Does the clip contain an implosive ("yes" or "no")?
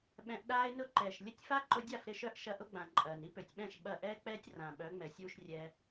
yes